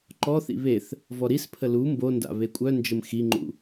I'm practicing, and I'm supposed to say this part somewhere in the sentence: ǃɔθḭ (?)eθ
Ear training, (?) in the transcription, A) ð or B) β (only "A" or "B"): B